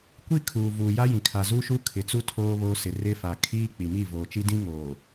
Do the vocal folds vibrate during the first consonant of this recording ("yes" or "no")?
no